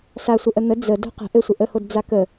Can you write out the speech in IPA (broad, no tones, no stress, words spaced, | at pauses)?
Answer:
sasʷə ʔən̪ə d͡zə do̤qə̤ ʔɘsʷə ʔəhod d͡zakə